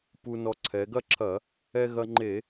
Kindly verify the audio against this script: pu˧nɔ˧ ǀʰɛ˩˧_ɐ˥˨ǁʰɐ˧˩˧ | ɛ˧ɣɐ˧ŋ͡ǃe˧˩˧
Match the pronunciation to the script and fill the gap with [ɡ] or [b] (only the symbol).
ɡ